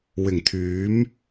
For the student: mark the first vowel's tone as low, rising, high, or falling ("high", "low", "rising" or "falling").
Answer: low